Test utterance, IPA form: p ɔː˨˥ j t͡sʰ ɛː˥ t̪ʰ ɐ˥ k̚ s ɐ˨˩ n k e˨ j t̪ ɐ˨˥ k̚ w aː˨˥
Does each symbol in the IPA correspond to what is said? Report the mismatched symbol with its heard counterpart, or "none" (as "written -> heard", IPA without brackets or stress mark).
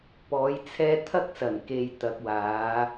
none